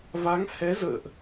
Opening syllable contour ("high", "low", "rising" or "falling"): rising